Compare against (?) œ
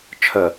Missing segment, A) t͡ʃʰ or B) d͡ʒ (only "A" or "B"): A